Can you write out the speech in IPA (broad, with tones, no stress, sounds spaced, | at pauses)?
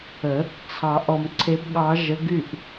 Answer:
ə˨˩˦ | t͡sʰ ɑ˨˩˦ ʔ ɔ˨ m ǀʰ e˧˥ b ɠ ɑ˧˥ ʒ ə˧˥ ɡ y˥˨ ʔ